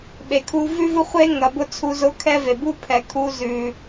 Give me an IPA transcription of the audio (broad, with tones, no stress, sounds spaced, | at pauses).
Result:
ɓ e˨ kʰ u˧ v ʉ˦ v ʊ˦ χʷ e˦ ŋ ɐ˨ b ʊ˧ t͡sʰ u˧ z ʊ˦ kʰ ɛ˦ v e˨ b u˦ pʰ ɛ˨ kʰ u˧ z ʉ˨